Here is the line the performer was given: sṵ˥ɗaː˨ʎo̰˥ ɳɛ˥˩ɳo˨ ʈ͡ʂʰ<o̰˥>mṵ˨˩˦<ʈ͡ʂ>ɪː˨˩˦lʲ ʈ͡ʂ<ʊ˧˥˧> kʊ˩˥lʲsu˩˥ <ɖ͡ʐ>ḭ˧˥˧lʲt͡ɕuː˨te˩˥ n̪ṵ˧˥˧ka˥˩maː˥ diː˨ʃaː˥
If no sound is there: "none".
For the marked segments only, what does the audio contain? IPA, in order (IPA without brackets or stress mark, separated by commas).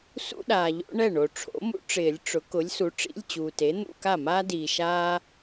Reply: o̰˩˥, ʈ͡ʂ, ʊ˩˥, ʈ͡ʂ